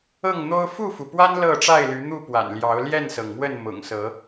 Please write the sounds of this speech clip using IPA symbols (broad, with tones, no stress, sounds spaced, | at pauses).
ɤ˥˨ ŋ n̪ o˦ ʊ̯ f u˥˨ f u˩ p w a˦ n l ɤ˥˨ ʈ͡ʂ a˥˨ ɪ̯ l y˨˦ n̪ u˥˨ p w a̰˨˩ n l j ɑ˨˦ ʊ̯ l j ɛ˥˨ n s ɤ˩ ŋ m w ə˥˨ n m ʊ̰˨˩ ŋ s ɤ˨˦